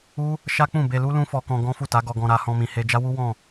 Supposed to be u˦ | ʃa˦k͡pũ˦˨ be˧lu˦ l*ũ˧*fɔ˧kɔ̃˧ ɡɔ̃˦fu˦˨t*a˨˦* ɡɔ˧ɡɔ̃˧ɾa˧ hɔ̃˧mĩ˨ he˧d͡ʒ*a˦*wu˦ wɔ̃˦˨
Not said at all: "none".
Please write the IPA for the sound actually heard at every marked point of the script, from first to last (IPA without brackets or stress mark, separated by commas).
ũ˦, a˨˦, a˦